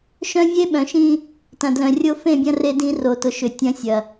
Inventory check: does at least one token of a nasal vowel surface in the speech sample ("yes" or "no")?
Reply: yes